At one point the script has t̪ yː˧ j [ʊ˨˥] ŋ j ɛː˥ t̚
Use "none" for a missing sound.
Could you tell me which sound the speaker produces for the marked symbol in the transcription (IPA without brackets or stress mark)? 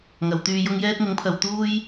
ʊ˥